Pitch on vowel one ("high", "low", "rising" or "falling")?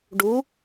rising